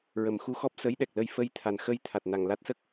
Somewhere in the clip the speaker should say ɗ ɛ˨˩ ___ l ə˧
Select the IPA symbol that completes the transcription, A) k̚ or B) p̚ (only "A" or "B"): A